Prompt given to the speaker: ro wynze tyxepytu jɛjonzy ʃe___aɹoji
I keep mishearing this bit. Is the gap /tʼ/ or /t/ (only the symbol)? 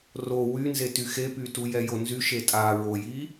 tʼ